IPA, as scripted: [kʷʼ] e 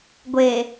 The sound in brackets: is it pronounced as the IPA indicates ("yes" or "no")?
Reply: no